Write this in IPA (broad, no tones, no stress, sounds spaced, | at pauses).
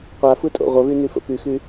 qʷ a f ɯ tʼ o̰ ʁʷ ə β y n y f ə̰ p y x y